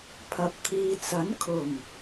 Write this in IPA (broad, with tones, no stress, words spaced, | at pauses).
pʰɐ˨p̚t̪ʰiː˨t͡sɐ˨˥nkʰʊ˨˩ŋ